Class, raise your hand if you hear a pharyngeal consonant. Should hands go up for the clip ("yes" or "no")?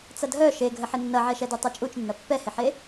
yes